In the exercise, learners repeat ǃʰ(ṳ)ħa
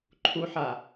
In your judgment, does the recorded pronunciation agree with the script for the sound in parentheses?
no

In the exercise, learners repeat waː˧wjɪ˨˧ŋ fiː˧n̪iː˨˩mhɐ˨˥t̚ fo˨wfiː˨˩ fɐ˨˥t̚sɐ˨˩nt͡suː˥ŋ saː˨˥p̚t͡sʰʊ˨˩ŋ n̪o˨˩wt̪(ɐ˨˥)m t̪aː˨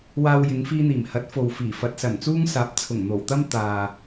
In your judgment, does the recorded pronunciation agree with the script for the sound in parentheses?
no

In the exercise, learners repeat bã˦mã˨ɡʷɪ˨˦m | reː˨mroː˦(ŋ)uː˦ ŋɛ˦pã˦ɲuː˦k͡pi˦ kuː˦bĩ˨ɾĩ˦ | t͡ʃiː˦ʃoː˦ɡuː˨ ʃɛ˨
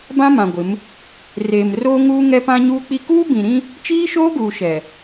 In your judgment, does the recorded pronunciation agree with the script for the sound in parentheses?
yes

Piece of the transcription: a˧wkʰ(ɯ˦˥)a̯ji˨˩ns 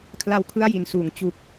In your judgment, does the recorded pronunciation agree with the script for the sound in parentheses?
yes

